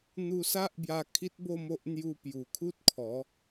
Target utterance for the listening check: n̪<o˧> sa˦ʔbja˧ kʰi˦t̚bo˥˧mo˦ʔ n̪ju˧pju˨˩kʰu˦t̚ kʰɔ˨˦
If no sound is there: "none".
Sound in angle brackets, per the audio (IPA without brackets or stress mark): u˧